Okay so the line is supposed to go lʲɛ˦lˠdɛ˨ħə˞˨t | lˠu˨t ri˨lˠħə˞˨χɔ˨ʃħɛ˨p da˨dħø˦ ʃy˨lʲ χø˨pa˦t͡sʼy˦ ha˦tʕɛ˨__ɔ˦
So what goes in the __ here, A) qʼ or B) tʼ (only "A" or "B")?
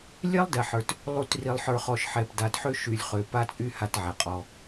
A